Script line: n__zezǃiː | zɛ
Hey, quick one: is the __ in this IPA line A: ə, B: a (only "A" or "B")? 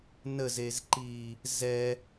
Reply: A